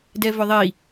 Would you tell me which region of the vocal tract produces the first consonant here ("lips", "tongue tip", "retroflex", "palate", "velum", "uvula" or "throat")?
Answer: tongue tip